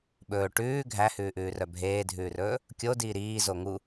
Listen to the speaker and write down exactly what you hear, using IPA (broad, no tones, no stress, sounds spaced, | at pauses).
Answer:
ɓ ɵː ʈ ʉː ɡʱ æ h ʉː ʔ ʉː r œ bʱ eː dʱ ʉː r ɵː | kʲ o d iː ɾ iː z o ŋ u